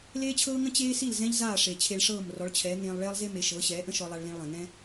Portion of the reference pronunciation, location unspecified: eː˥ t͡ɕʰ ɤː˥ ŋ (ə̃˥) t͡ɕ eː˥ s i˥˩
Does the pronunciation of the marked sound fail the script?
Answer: no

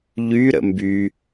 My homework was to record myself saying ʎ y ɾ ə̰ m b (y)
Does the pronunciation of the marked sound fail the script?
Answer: no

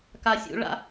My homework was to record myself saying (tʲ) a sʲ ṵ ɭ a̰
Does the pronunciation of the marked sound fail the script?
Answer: yes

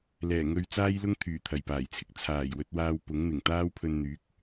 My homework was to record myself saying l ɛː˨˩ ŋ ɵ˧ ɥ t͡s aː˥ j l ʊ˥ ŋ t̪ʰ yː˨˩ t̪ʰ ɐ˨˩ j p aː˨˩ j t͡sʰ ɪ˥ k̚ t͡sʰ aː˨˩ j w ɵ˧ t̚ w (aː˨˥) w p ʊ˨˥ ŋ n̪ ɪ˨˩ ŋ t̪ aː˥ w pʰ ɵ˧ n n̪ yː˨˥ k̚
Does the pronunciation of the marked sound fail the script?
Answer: yes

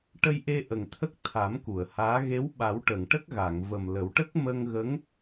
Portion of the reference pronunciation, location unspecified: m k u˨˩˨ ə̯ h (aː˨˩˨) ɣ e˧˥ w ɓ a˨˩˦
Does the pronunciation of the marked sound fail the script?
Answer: yes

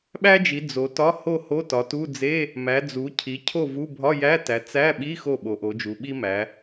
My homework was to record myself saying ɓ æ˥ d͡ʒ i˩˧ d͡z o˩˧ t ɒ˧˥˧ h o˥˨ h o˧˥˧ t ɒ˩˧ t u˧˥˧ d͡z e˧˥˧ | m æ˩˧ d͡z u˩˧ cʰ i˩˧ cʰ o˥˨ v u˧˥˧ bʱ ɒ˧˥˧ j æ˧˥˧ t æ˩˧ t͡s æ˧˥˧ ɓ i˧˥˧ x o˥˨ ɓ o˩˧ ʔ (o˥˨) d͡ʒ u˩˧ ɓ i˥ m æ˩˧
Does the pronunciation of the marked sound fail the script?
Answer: yes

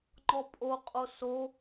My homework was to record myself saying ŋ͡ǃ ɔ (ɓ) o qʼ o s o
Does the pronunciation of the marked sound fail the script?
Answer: yes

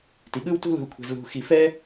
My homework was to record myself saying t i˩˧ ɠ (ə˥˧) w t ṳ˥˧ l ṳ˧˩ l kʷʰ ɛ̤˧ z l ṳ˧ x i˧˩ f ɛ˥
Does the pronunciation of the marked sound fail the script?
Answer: yes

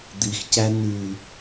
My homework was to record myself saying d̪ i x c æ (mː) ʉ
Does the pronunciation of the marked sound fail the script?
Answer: yes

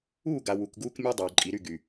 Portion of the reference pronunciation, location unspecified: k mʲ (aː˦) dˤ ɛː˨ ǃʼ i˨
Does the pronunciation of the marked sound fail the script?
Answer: yes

